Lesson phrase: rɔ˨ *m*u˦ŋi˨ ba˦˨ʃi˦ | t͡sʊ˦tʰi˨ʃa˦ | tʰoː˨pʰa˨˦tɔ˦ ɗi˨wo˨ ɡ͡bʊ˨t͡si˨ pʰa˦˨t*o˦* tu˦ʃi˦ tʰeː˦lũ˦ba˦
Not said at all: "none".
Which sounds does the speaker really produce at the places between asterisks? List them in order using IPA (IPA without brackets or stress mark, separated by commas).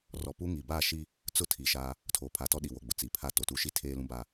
p, o˨